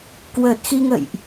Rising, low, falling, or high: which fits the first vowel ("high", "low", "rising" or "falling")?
low